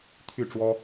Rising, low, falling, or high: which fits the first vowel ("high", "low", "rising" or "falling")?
falling